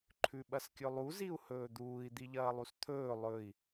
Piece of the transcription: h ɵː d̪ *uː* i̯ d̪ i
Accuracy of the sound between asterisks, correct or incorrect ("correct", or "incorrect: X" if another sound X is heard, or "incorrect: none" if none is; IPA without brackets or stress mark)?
correct